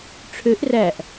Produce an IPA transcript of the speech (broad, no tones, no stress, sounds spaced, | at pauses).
ʈ͡ʂʰ ø ʔ r æ ʔ